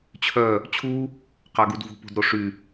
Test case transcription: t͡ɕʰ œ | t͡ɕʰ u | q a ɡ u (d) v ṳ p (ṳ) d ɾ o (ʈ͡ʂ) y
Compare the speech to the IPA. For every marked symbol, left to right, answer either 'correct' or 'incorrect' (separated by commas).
correct, correct, incorrect